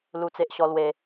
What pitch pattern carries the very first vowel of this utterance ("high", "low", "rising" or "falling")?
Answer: high